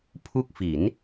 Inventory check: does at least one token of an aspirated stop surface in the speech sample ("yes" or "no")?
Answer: yes